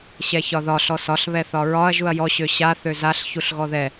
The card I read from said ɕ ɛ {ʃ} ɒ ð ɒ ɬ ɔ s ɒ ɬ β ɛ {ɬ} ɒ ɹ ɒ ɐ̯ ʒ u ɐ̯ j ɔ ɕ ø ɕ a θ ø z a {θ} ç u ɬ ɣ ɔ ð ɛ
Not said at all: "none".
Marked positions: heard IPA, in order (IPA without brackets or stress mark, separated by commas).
ç, θ, ɬ